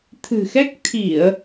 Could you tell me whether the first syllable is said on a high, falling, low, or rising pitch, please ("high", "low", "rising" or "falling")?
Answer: low